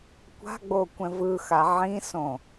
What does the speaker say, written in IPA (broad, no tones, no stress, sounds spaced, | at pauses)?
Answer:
kʷ a̤ ɡ͡b o kʷ ɛ̃ v ɯ x a ʕ ĩ s õ